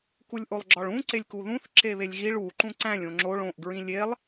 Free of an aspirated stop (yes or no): yes